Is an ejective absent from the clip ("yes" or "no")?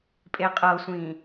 no